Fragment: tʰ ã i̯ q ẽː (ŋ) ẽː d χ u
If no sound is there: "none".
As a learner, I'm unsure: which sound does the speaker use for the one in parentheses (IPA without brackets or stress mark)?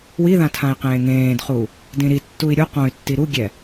ŋ